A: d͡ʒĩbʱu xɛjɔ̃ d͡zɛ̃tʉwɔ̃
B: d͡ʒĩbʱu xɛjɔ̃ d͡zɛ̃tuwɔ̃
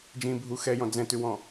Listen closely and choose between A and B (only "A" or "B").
A